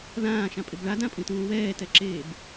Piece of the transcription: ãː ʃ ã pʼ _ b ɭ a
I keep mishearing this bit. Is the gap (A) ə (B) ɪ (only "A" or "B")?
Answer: B